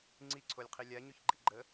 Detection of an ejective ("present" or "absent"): absent